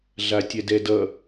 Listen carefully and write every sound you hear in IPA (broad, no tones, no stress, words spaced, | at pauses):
ɮatʲɛdɛdʌ